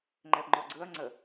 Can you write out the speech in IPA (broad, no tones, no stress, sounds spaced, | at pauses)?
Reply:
ŋ͡ǃ ɛ p ŋ͡ǃ ɔ ɡ͡ǀ ɯ ɐ̯ ŋ͡ǀ ə